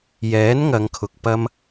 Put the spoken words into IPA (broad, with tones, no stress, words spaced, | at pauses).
jɛː˨˥nŋɐ˨˧ŋkʰʊ˨k̚ pɐ˧m